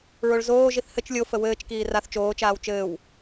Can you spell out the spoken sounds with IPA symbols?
ɹoɭzoːʒiθ hɘt͡ʃ lʲofə wɘːt͡ʃkiː raθ t͡ʃoːt͡ʃaːw t͡ʃɘːw

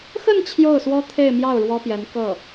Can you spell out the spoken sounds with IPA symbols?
xə˥˧n t͡ɕʰjo˥˩ʊ̯swɔ˥t̪ʰe˥˧ɪ̯mjɑ˥˩ʊ̯ ɻwɔ˥pjɛ˧˥nkɤ˥˩

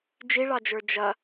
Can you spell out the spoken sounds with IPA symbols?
d͡ʒiɭɑd͡ʒə˞ d͡ʒɐ

